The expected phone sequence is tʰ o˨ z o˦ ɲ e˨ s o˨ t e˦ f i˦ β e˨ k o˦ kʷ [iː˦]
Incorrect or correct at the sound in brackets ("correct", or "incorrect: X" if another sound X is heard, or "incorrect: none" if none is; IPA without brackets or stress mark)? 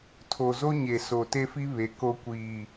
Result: incorrect: iː˨